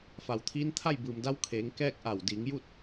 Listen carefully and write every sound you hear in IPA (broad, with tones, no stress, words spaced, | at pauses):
fa˩wt̪ʰiː˧˥n t̪ʰa˥˨jbɯː˩mda˧˥wkʰeː˩˧ŋ kɛː˥˨k̚ʔa˧˩w diː˩˧ŋju˥˨t̚